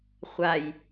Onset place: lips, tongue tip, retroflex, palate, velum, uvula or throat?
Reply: uvula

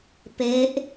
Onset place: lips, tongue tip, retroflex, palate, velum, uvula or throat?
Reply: lips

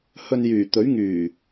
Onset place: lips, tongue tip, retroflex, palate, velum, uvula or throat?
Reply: throat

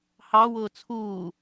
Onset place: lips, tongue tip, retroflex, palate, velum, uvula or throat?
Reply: throat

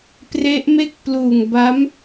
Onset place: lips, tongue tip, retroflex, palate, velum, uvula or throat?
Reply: lips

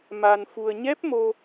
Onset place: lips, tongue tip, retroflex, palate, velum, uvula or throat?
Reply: lips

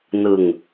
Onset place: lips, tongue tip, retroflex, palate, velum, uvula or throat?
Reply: tongue tip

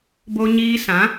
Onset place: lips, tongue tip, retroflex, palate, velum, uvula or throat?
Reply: lips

